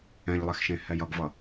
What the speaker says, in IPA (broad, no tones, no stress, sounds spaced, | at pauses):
ɛ̃ ʎ lˠ ɛ x ʃ ẽ h ɛ j ʌ ɡ v ʌ